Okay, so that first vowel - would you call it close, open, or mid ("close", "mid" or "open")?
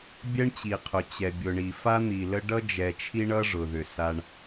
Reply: mid